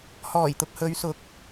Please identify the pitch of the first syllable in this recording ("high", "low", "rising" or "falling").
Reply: low